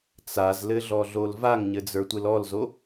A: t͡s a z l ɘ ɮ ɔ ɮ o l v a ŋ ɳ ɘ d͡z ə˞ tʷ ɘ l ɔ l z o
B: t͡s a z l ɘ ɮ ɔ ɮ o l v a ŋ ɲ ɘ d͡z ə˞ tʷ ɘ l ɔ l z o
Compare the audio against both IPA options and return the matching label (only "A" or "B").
B